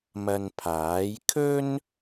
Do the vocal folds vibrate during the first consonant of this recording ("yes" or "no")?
yes